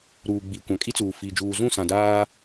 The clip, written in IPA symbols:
ɾ uː˨ ɡ͡b i˨ kʷ ã˨ kʼ i˦ t͡s uː˨ f i˨ d͡ʒ uː˨ z ũ˦˨ s ã˨ d aː˦

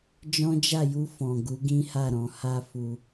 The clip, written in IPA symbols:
d͡ʒ ɔ̃˦ d͡ʒ a˦˨ j u˧ f ɔ̃˨ ɡ u˨˦ ɡ ĩ˦ h a˦˨ ɾ ɔ̃˨ h a˧ f u˧

